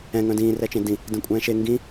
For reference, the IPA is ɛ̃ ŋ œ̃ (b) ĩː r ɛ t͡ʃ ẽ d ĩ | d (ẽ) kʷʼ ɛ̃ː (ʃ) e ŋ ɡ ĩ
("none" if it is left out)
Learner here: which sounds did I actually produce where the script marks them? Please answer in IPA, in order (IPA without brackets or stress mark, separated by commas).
d, ẽ, ʃ